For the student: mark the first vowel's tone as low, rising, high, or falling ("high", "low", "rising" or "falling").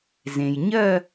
low